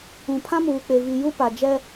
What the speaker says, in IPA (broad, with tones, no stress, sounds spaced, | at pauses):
ũ˨ pʰ ã˦ m uː˨ k͡p e˨ v i˨ j u˦ p a˨ d͡ʒ ɛ˦